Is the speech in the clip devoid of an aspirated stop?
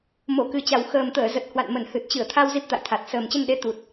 no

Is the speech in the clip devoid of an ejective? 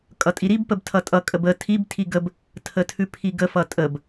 no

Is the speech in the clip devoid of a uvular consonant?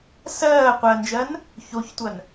no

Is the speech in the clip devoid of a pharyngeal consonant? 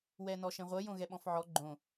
no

